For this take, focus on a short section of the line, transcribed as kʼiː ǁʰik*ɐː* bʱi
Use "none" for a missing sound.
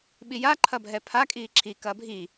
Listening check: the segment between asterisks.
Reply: ɐː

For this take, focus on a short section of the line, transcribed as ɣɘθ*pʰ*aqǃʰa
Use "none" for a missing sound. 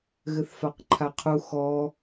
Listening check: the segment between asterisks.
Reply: f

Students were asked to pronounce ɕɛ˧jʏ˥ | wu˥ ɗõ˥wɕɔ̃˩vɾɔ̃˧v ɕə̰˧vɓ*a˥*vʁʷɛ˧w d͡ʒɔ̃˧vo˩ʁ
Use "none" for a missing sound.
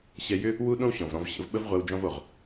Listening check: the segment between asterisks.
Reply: ə˥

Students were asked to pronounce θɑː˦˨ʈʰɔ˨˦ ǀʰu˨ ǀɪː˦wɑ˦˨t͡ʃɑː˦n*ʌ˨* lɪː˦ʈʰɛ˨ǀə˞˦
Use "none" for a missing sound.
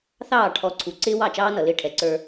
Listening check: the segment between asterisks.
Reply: ʌ˨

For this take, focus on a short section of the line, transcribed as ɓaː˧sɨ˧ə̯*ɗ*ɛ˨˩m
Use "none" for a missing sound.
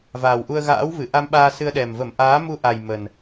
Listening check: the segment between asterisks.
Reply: ɗ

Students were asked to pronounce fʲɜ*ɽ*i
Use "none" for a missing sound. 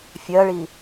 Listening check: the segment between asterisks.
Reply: ɭ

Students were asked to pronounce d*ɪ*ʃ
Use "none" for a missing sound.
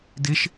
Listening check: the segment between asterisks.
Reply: ɪ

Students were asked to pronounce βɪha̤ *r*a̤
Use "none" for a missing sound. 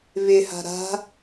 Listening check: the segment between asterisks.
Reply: ɾ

